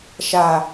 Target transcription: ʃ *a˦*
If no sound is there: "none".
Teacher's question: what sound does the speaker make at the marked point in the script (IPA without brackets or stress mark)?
a˨